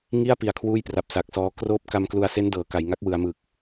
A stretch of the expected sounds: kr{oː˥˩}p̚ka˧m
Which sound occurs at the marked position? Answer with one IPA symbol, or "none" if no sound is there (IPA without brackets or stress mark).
oː˦˥